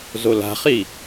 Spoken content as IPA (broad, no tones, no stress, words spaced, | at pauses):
zola̤χi